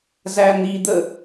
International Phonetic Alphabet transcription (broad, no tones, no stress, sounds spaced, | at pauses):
z æ n̪ i d̪ ə